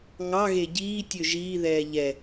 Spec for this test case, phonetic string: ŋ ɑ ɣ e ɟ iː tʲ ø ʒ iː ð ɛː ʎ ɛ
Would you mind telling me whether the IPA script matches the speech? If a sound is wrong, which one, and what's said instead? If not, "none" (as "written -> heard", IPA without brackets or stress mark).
none